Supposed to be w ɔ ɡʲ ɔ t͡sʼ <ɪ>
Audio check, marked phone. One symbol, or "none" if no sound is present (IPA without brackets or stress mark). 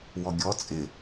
ɪ